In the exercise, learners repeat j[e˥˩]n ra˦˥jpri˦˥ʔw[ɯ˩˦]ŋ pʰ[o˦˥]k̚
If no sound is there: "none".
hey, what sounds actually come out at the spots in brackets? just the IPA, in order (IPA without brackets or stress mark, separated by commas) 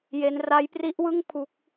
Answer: e˦˥, ɯ˥˩, u˦˥